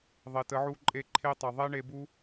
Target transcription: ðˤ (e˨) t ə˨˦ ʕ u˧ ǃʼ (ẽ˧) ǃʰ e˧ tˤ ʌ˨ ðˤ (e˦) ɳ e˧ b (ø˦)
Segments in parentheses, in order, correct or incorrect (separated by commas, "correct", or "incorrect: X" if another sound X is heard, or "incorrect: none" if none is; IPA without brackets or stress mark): correct, incorrect: e˧, correct, incorrect: u˦